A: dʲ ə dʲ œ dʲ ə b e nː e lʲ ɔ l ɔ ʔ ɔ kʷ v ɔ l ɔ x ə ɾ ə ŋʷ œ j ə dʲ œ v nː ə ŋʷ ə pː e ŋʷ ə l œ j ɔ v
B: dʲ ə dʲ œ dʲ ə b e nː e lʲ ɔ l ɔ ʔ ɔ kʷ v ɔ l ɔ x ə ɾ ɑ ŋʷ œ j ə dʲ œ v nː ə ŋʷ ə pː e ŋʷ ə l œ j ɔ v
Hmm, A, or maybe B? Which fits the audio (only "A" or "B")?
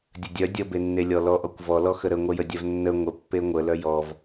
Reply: A